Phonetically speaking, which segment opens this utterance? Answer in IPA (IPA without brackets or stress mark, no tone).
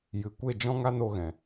j